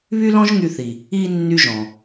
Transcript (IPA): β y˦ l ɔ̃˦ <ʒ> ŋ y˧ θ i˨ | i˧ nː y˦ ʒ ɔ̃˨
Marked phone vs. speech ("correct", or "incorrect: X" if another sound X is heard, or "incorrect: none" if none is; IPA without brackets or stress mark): correct